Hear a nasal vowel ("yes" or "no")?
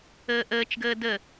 no